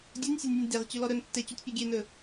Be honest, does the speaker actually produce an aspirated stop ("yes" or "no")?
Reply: no